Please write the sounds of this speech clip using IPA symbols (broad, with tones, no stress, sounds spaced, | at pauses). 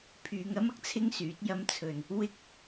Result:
pʰ yː˨˧ ŋ ɐ˥ m ɐ˥ k̚ t͡sʰ ɪ˥ ŋ s yː˨˥ t̚ j ɐ˧ m t͡sʰ ɵ˨ n | w ɪ˥ k̚